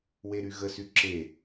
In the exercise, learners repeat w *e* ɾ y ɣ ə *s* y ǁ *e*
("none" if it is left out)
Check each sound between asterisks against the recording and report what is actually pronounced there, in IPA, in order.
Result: e, s, e

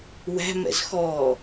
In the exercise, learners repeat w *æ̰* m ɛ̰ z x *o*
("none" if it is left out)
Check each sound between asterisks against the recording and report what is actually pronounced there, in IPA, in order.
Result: æ̤, ɔ

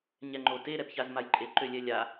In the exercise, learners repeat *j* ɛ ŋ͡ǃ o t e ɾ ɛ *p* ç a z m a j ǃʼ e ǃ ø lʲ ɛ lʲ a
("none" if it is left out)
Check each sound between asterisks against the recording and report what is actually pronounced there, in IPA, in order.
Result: ɲ, p

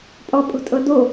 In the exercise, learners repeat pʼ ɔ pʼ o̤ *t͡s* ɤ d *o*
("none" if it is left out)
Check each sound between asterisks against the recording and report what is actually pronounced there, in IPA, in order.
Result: tʼ, o

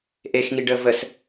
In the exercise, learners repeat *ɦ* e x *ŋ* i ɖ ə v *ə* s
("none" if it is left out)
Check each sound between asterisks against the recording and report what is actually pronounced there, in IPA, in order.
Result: ʔ, ŋ, ə

